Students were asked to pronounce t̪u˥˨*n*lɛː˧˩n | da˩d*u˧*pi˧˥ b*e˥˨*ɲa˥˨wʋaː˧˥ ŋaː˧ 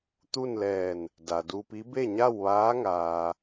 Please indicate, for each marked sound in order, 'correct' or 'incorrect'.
correct, correct, correct

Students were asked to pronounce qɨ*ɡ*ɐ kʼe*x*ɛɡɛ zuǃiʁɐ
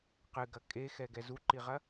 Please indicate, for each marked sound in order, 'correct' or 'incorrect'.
correct, correct

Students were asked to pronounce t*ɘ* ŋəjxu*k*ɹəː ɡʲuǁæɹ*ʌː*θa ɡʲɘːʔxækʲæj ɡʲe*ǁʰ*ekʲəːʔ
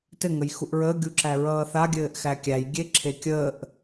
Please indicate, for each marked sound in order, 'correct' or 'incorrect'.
correct, incorrect, correct, correct

